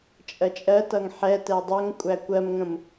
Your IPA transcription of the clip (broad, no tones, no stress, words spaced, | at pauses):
t͡ʃʼɜt͡ʃʼɜtʌŋ ħɛtɛ dˤoŋkʷʼæ kʷɜmŋə̃m